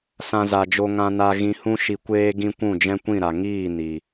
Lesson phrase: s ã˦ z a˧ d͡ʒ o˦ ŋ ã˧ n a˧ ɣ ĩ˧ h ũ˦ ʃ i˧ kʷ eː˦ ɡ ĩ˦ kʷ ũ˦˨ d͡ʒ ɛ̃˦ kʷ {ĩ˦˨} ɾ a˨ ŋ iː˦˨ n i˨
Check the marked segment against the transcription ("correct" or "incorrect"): correct